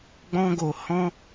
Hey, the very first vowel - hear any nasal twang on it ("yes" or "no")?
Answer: yes